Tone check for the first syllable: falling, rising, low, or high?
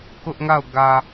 high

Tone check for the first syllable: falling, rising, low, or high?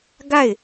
falling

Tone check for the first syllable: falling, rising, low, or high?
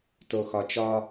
low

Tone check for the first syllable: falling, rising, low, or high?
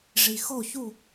low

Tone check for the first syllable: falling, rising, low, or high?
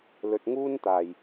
low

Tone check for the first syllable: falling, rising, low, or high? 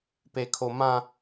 high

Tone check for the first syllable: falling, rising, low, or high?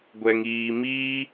low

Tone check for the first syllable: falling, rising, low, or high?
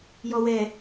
low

